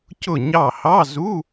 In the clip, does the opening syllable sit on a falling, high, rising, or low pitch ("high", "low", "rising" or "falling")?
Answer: falling